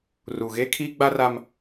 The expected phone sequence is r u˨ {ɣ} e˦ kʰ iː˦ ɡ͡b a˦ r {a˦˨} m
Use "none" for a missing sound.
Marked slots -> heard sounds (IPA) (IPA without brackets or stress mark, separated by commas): ɣ, a˦